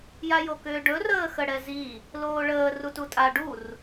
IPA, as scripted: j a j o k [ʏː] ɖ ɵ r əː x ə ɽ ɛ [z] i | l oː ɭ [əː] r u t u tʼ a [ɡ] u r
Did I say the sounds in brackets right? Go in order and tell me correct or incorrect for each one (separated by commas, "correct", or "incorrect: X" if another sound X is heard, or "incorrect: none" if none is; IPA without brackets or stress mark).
correct, correct, correct, incorrect: ɖ